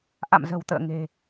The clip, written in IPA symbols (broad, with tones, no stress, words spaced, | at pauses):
ʔa̰˧˨mzə̤˨˩wt̪ə̰ː˧˨ ŋe̤˨˩